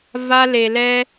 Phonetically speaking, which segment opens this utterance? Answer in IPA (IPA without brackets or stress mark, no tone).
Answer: v